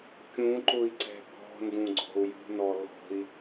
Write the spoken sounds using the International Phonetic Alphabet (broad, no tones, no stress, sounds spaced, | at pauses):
kʲ ũ ǃ ʊ i̯ ǀ ɛ̤ b ɔ̤ n d ũ ɡ͡ǀ ɔ̤ u̯ j ṳ n ɔ l ɔ̤ i̯